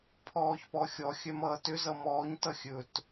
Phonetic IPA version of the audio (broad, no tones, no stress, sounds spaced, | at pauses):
pʰ ɔː ç p ɔ xʲ ɔ xʲ œ m ʌː t ʏ z ʌ m ɔː ɲ t ʌ xʲ ɵ t